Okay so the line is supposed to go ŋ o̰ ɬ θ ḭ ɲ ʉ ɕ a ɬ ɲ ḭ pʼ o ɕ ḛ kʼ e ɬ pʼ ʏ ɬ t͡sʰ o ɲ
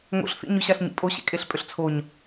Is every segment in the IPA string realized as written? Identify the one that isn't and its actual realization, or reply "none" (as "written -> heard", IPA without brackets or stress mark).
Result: none